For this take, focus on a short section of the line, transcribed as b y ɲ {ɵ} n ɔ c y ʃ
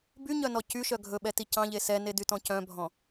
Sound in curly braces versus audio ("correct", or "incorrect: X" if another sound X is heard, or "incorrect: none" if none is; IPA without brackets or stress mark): incorrect: œ